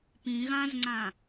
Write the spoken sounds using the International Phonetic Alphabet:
p ĩ ɣ ã z ŋ͡ǀ ã

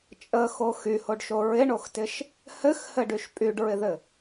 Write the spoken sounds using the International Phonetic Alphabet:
t͡ʃʼ ə x o x y h o ɖ ʃ o ɹ ɪ ɳ o x t ɪ ʃ | h ɘ x h ɘ ɖ y ʃ pʼ y ɖ ɹ ɪ ð ɘ

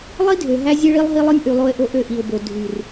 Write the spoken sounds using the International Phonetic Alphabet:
lˠ i˦ dʱ ø˨ ɦ æ˦ zʲ e˦ ɭ i˦ lˠ ɦ i˦ lˠ ɯ˦ nʲ ʔ y˨ lˠ o˦ ɪ̯ ʔ o˦ ʔ ø˦˨ ʔ i˨ ʊ̯ b o˨ dʱ y˨ r

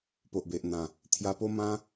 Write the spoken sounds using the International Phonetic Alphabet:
p o˨ ʔ b e˨ ʔ n̪ ã˨˩ | t̪ʰ j a˧ p o˦ m ã˦

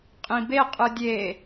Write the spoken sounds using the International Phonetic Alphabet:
qʼ ĩ b e qʼ ɯ dʲ e

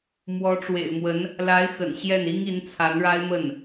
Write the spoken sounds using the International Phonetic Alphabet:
m w ɔ˧˥ ʈ͡ʂ w ḛ˨˩ ɪ̯ m w ə˧˥ n | l a˧˥ ɪ̯ x ə̰˨˩ n ɕ j ɛ˥˩ n i˥ ŋ i˧˥ n t͡sʰ a˧˥ n ɻ a˥ ɪ̯ m ə˥˩ n

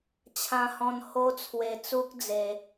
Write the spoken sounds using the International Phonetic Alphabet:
t͡ɕʰ ã˧ h ɔ̃˧ n h o˦ t͡sʰ w e˧ t͡s u˦ k̚ d͡z e˧

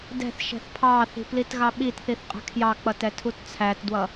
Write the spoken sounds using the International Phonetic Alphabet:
d ɛ̤ θ ʃ ɛ̤ θ pʰ ɑ θ i̤ p l i t ɣ ɑ ɓ i t θ i θ qʼ ɛ̤ kʰ j ɑ k͡p ʌ t ɛ tʰ u t t͡sʰ æ t d w ʌ

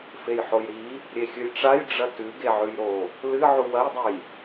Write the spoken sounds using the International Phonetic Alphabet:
f e j ħ o j ɾ i | ɾʲ e xʲ ɨ j ʈ͡ʂ a j ɖ͡ʐ ɐ t ʉ ɡ e ʕ ʉ j ɾ o | l ɨ ʕ u w ɐ j dˤ e j

